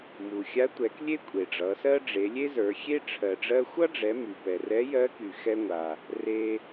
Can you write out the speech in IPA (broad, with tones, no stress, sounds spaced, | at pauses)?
m u˩ xʲ a˧˥ tʷ ɛ˩˧ k lʲ e˥ kʷʼ e˩ ɖ͡ʐ ʌ˩˧ s ɜ˥ ɖ͡ʐ e˩˧ lʲ e˥ z ə˞˩˧ xʲ e˥ ʈ͡ʂʰ ɜ˩ ɖ͡ʐ ɜ˧ xʷ ʌ˥ ɖ͡ʐ ɛ˩˧ m y˩ p ɛ˩ r ɛ˧˥ j ɜ˧˥ k y˩ x ɛ˧ ŋʷ a˩ | r e˧